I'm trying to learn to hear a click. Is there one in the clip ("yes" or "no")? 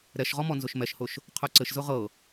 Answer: yes